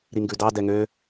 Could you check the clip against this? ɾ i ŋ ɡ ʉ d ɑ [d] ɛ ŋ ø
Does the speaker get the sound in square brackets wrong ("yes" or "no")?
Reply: no